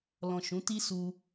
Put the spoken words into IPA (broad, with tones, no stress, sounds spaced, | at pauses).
l ɔ̃˨ ʃ ũ˨˦ t i˦ s u˧